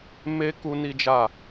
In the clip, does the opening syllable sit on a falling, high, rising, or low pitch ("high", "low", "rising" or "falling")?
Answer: high